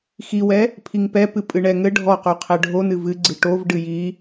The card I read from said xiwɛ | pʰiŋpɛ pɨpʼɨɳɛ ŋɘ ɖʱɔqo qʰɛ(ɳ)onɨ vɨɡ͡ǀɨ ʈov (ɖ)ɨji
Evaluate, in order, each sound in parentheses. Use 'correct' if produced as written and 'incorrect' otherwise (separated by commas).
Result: incorrect, correct